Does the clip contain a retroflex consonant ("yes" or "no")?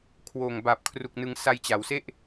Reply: no